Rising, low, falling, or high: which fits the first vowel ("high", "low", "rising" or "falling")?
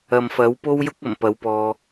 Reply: low